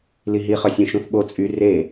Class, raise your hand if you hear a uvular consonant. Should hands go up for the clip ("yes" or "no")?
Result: yes